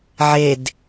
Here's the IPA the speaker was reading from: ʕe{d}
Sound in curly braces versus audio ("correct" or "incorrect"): correct